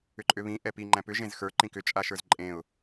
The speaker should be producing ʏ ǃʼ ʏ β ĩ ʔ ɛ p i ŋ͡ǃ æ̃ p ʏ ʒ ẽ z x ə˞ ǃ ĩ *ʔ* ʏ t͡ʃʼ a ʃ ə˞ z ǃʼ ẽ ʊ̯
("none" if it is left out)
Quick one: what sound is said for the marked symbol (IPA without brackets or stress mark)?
k